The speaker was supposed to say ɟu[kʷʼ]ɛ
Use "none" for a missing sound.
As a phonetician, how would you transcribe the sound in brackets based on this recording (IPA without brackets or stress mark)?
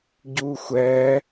xʷ